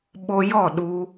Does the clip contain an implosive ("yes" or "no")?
yes